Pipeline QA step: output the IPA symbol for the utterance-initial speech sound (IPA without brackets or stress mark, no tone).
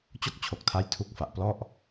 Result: t͡ɕ